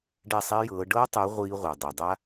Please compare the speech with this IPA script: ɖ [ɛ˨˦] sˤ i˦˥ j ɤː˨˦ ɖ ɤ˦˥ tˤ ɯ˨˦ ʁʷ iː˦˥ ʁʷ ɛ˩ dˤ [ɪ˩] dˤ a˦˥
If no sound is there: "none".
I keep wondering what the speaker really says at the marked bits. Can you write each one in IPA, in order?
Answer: ɛ˥˩, i˩

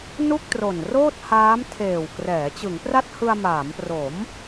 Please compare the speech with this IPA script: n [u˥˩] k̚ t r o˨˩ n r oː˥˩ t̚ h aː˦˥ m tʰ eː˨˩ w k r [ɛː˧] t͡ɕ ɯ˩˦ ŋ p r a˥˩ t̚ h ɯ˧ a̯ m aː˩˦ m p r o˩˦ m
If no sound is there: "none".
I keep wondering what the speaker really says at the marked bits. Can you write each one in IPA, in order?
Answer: u˥˩, ɛː˩˦

